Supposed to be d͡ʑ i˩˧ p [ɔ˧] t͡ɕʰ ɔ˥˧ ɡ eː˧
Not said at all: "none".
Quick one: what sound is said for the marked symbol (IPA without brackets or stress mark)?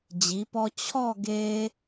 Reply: ɔ˧